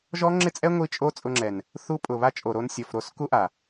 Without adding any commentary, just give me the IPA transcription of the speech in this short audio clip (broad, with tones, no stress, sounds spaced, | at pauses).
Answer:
ʒ ɔ˦ ŋ͡ǁ ɪ˦ t͡sʼ ɛ˦ ŋʷ i˦ t͡ʃʼ o˦ t͡sʼ ʊ˧ ŋ͡ǁ ɛ˨ n | θ u˧ pʼ ʊ˨ β a˦ t͡ʃʼ o˨ ɾ o˧ n sʲ ɔ˨ f ɾ o˦˨ s k u˦ ʔ a˨